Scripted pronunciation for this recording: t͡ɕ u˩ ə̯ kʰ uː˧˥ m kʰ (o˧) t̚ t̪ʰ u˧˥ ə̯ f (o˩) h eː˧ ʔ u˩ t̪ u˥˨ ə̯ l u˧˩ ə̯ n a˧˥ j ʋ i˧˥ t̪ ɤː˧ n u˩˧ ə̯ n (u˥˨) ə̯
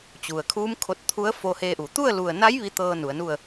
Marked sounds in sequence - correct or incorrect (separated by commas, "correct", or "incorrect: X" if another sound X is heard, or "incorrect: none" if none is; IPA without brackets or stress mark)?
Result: correct, incorrect: o˧, correct